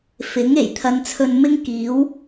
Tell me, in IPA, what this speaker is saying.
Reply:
f ɪ˨˥ ŋ e˨˩ j t̪ʰ ɐ˨ n t͡sʰ ɵ˧ n m ɪ˥ ŋ k iː˨˥ w

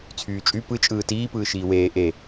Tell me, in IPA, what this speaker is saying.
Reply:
t͡sʰ yː t͡ʃʼ y p ɯ t͡ʃʼ ɯː t iː p ɯː ʃ iː w eː ʔ e

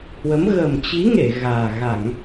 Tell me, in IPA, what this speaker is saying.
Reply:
h w ə˨˦ m ɣ ə˨˩ m t͡ɕ i˨˦ ŋ e˧˩ ɣ aː˨˩ ɣ a˧˩˨ ŋ

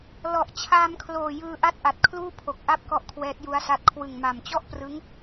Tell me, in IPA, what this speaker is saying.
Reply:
l ɔ˨˩ ʔ t͡ɕʰ aː˧ m kʰ l oː˨˩ j ɯː˧ ʔ a˥˩ t̚ ʔ a˨˩ t̚ kʰ l uː˥˩ pʰ o˨˩ k̚ ʔ a˥˩ p̚ k ɔ˥˩ ʔ kʰ w ɛː˦˥ t̚ j u˦˥ a̯ s a˦˥ t̚ kʰ w ɯ˨˩ ŋ m a˨˩ m t͡ɕ ɔ˥˩ ʔ p r ɯ˦˥ ŋ

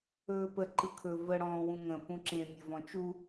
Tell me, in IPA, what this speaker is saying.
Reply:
ɵː p ə ǃ ɯ kʰ ɵ v ə ɽ ɔ̃ː w ũ ŋ ə̃ p ũ ǁ ẽ mʲ ɘ v ɔ̃ t͡ʃ u

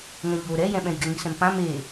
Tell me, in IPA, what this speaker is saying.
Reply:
ŋ ɛ̃ ʎ o ɾ ɛ j ɛ̃ ɓ ɛ̃ j ɡ ɛ ŋ i s ɛ̃ m p ã m e

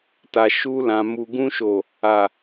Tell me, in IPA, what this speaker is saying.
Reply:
t a˨ ʃ u˧ l ã˨ m u˨ ɡ ũ˧ ʃ o˨ | a˨

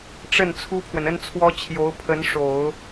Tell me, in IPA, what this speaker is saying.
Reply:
ʈ͡ʂ ə˥˩ n t͡sʰ u˥ pʰ w ə˨ n ə˥ n t͡sʰ w ɔ˥ t͡ɕʰ j o˧˥ ʊ̯ pʰ ə˧˥ n ʂ o˨˩˦ ʊ̯

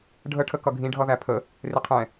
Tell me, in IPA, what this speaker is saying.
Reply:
ɖʱ ə ʈʰ ə k ʌ ɡʱ ĩ ɖʱ ʌ ð æ pʰ ə | r ɪ qʰ ɛ̃

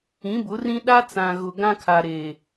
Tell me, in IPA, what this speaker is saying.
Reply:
ĩ˨˦ b ʊ˨˦ r ĩ˦ ɗ a˦ t͡s ã˨ ɣ ʊ˨ ɡ ã˦ kʰ a˨ ɾ eː˨

